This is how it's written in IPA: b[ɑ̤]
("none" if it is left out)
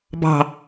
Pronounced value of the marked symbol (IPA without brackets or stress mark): ɑ̤